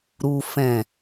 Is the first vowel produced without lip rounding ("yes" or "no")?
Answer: no